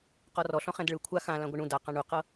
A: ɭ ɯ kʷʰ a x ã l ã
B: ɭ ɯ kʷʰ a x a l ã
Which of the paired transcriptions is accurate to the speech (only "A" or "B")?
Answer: A